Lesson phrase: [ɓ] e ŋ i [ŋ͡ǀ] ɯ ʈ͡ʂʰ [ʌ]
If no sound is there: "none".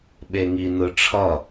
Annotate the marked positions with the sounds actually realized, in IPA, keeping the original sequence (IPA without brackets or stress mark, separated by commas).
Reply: ɓ, n, ʌ